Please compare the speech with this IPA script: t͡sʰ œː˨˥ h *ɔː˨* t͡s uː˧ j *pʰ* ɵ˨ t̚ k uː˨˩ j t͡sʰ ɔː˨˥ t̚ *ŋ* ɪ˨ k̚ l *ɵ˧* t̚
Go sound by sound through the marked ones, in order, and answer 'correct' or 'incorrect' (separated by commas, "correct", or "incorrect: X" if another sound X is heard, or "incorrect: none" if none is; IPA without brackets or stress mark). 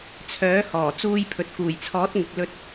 incorrect: ɔː˨˩, correct, correct, correct